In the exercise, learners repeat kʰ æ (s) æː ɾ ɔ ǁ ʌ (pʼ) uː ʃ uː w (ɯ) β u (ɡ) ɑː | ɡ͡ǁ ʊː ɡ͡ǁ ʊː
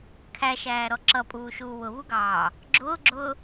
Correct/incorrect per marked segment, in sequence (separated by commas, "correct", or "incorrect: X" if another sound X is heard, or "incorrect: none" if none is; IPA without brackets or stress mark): incorrect: ʃ, correct, incorrect: ʊ, correct